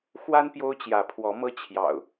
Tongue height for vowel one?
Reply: low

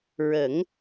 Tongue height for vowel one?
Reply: mid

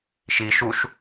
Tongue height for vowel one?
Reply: high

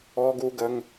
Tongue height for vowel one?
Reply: mid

